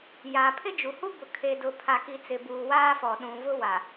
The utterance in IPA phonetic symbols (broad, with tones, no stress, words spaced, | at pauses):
ja˨ pʰɪ˦d͡ʒu˨hu˦bʊ˨ kʰe˨dʊ˨pʰa˨ki˨ t͡sɪ˨buː˨waː˦fɔ˨ ɗũ˨ vʊ˦wa˨